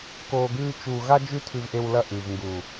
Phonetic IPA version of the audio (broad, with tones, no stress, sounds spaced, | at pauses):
k oː˧ ɡ ʉː˦ t͡ʃ uː˧ ɣ a˦ d͡ʒ ʉ˦ tʰ ʉ˧ v ʔ e˧ w l ɐ˦˨ ʔ ʉ˨ v ŋ ɡ u˨